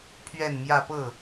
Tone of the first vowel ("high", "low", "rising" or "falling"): falling